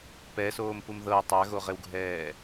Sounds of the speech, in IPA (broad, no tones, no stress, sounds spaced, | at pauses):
p ɛ s oː m p u m ð ɤ w tˤ a ɣ o ʁ e w ɡʱ ɛː